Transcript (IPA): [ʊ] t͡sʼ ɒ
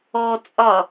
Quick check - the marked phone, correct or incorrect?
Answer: incorrect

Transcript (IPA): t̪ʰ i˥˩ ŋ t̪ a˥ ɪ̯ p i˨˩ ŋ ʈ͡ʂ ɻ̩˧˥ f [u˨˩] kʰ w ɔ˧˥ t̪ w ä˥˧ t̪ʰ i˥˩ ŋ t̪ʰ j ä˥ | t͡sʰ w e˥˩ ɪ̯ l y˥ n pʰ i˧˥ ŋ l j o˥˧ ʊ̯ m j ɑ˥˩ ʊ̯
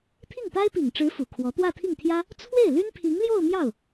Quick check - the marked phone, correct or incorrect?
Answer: correct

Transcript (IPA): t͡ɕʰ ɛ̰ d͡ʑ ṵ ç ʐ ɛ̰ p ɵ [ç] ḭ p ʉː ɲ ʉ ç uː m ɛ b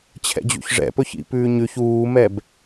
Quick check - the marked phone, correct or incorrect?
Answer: correct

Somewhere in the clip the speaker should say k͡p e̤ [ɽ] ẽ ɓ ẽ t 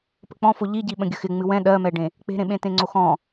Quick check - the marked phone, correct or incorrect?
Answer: incorrect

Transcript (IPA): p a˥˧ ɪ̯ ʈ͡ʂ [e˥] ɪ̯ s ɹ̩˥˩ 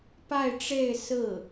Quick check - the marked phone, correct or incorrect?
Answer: incorrect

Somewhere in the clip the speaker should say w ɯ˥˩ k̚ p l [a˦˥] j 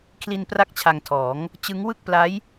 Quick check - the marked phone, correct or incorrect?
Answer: correct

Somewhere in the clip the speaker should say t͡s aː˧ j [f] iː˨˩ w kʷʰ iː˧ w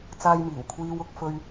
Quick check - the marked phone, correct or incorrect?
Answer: incorrect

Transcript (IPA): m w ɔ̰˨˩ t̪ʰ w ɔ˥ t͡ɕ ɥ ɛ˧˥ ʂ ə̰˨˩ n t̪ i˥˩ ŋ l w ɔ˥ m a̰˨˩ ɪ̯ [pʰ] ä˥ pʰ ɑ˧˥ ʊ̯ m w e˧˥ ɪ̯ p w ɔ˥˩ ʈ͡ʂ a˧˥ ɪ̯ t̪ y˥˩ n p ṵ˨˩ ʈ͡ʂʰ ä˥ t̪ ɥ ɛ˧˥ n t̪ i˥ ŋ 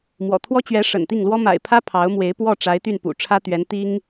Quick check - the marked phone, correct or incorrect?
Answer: correct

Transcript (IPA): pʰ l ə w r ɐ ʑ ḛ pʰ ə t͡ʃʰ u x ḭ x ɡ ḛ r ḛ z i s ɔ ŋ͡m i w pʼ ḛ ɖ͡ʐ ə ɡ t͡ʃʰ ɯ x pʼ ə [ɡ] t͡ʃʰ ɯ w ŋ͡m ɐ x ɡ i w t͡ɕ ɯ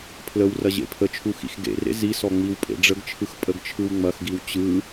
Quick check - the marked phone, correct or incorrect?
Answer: correct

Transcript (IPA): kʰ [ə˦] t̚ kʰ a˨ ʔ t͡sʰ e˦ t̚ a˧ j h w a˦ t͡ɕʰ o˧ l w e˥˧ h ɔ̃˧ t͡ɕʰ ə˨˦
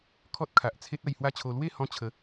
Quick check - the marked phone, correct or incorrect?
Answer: incorrect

